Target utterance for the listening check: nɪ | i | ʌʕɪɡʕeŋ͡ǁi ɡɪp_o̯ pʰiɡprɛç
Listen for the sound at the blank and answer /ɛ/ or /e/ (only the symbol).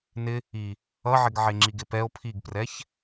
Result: ɛ